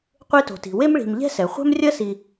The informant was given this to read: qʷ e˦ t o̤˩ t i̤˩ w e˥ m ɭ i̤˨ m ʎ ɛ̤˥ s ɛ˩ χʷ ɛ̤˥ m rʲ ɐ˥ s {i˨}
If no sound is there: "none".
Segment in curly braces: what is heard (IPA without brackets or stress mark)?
i˨